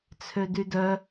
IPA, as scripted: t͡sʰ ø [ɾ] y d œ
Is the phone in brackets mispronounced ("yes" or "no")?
yes